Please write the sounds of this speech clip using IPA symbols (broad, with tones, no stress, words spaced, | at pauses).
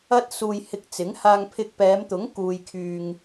ɐ˥t̚suː˧j hɪ˧k̚ t͡sɪ˨˥ŋhaː˧ŋpʰɪ˧k̚ pɛː˨˧mt̪ʊ˨˥ŋkuː˨jkʰyː˨ŋ